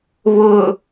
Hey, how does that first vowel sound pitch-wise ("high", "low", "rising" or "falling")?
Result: low